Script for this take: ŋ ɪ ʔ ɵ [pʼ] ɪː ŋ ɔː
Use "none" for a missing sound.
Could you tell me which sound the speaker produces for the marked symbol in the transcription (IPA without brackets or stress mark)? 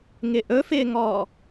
f